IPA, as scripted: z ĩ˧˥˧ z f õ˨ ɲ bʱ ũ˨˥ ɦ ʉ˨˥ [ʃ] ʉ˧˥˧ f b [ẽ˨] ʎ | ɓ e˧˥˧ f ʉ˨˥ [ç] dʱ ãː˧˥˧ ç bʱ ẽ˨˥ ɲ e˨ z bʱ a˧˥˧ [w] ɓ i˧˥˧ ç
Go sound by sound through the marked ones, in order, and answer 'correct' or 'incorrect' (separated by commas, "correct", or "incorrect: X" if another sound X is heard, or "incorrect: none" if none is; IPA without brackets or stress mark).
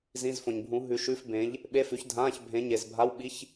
correct, incorrect: ẽ˨˥, correct, correct